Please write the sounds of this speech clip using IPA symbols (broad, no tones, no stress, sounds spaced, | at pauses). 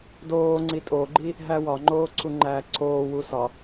d oː ŋ͡ǀ i tʼ o ɡ͡ǃ i | ɦ æ w ɒ ŋ͡ǃ oː ǀʰ u ŋ͡ǃ æː ǀʰ oː w u s ɒ